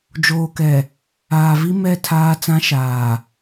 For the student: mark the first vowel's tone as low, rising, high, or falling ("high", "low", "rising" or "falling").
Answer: low